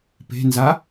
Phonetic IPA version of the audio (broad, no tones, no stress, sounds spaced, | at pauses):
p e̤ n z a